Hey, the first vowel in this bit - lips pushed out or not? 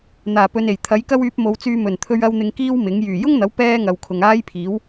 no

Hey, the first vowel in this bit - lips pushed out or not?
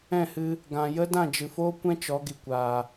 no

